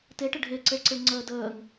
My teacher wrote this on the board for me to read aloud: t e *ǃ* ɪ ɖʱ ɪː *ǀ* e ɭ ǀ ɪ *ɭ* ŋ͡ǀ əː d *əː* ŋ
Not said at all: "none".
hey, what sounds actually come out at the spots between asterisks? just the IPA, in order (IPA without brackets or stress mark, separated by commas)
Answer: ʈ, ǀ, ɭ, əː